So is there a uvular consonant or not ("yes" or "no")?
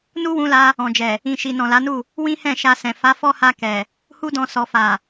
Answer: no